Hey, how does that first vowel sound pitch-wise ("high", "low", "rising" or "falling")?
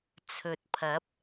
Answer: low